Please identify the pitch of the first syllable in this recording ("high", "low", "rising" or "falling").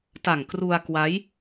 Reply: low